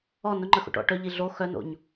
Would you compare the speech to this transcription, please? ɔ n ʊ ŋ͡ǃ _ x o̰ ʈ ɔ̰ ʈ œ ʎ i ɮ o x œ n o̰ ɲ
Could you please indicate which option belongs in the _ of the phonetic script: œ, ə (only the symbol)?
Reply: ə